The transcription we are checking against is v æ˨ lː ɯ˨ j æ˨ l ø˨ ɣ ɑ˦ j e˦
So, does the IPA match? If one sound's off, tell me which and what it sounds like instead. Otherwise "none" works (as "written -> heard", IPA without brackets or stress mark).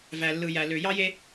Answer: ɣ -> j